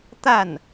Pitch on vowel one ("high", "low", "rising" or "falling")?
falling